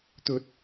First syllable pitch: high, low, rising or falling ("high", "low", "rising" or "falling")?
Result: high